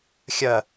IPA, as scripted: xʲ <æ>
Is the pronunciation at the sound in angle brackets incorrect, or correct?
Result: incorrect